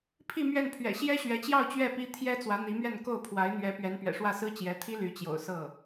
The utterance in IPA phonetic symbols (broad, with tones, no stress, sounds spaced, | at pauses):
pʰ i˥˧ m ɥ ɛ˥˩ n pʰ ɥ ɛ̰˨˩ ɕ j ɛ˥ ɕ ɥ ɛ˧˥ t͡ɕ j ɑ˥˧ ʊ̯ t͡ɕ ɥ ɛ˥˩ p i˥ t̪ʰ j ɛ˥ t͡s w ä˧˥ n̪ i˧˥ m ɥ ɛ˥˧ n k o˥˩ ʊ̯ pʰ w a˧˥ ɪ̯ n̪ ɥ ɛ˧˥ p ɥ ɛ˧˥ n p ɥ ɛ̰˨˩ ʂ w ä˥˩ s ɹ̩˥ t͡ɕ j ɛ˧˥ t̪ʰ i˥ l y˧˥ t͡ɕ j o̰˨˩ ʊ̯ s ɤ˥˩